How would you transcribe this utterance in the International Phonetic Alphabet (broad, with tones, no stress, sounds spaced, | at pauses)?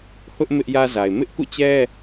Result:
h ʊ˦ ʔ m ɪ˦ ʔ j ä˦ z a˨ ɪ̯ m ɪ˦ ʔ k ṵ˦˨ t͡ɕ ɛ˦